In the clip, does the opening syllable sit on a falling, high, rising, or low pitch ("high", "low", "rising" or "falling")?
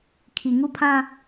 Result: low